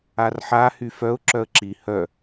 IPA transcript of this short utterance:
arħa hyfœʊ̯ ǁœə̯ǁi hœ

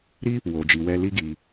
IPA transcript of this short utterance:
ɾi˦ | wo˨d͡ʒi˨ wɛ˧li˦ɡi˧

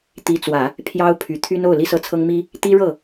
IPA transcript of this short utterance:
t̪i˧˥t͡swä˨˩˦ | pʰjɑ˥ʊ̯ pʰy˨˩t̪ʰy˥no˥˩ʊ̯ li˥sɤ˥˩t͡sʰɤ˥ŋmi˥ | t̪i˥ɻɤ˥˩

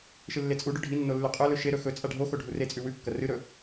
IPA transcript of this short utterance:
ʃɨlːet͡sʼuɖʉ ɖʱinːo lːʉqʼɵlɵ ʃeɾɵ xɵ t͡sʼaɖʱoxo ɖʱuret͡sʼʉ wʉkːɐ rɨɾɵ

